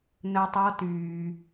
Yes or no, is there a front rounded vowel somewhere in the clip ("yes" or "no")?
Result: yes